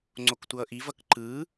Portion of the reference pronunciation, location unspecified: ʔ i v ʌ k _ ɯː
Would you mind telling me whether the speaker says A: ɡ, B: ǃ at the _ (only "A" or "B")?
B